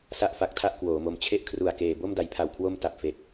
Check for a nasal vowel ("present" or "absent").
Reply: absent